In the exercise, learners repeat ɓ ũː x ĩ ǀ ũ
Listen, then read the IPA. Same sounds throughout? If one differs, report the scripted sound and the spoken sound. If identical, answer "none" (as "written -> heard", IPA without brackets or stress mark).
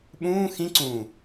none